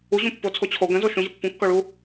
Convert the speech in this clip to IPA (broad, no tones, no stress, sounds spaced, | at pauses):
u ʑ ũ pː o t͡sʰ o t͡ɕʰ o ɡ ə̃ z o ʃ ũ ʑ ə pː ũ kː ɔ ɭ u